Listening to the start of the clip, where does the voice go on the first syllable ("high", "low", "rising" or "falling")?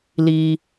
high